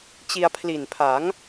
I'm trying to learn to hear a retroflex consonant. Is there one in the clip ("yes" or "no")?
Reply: no